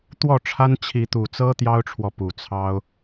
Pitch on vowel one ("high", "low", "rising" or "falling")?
falling